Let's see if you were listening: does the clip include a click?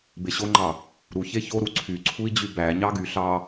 yes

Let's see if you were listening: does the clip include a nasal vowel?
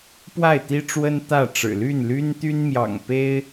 no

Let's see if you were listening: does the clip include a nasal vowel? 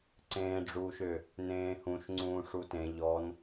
yes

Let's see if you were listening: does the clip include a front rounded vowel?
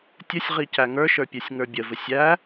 no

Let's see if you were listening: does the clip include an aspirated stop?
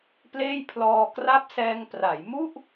yes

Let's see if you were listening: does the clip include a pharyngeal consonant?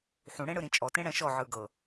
yes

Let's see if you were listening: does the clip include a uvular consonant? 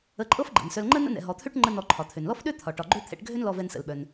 no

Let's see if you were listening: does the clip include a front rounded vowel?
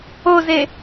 no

